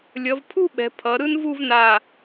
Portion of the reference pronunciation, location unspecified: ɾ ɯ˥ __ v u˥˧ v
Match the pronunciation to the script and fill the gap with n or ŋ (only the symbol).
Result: n